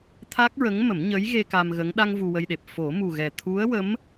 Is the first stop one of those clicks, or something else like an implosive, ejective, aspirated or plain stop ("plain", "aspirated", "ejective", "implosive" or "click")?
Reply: aspirated